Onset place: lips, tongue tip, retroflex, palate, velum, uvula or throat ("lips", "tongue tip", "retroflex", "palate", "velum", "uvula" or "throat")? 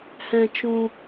throat